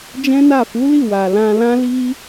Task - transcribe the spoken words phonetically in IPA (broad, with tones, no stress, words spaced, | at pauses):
d͡ʒɛ̃˦na˦˨ fu˨˦li˦˨ wa˨ lã˧lã˦li˦